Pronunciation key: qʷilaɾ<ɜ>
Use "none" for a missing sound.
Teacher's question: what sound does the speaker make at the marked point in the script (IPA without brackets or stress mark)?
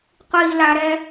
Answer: ɛ